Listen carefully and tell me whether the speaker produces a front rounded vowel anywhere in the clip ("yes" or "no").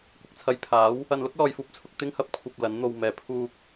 no